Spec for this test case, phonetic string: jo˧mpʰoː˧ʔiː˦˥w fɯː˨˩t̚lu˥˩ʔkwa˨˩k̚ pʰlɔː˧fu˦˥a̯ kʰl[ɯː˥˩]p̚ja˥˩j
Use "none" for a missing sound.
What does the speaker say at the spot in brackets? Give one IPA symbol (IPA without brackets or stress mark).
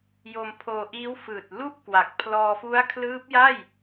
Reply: ɯː˦˥